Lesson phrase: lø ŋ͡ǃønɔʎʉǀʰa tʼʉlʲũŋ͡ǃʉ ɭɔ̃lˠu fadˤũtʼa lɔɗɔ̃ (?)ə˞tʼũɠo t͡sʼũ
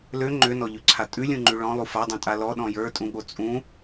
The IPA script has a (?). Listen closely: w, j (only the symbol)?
j